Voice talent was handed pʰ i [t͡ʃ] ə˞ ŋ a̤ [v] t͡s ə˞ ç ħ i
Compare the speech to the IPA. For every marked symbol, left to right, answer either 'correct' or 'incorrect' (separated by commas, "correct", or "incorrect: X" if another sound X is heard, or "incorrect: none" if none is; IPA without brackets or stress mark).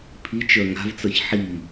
correct, correct